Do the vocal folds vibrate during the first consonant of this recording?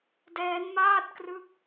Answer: yes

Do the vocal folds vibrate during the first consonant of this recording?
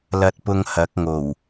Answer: yes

